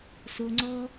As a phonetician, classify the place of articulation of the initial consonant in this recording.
alveolar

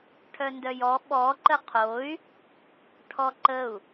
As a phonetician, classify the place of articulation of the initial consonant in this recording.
retroflex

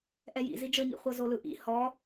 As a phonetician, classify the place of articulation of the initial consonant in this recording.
glottal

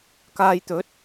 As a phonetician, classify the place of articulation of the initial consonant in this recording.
velar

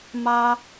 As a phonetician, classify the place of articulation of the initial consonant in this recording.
labial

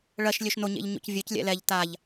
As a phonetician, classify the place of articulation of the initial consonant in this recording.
retroflex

